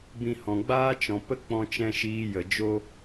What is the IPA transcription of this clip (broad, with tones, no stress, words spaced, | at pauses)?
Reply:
bĩ˧hɔ̃˨ ɡ͡baː˦t͡ʃɔ̃˨pə˦ k͡pɔ̃˧t͡ʃɛ̃˧ ʃiː˧jə˨ d͡ʒo˦